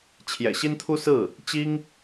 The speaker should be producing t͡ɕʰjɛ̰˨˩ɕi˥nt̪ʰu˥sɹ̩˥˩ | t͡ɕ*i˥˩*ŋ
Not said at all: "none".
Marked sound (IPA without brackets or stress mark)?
i˥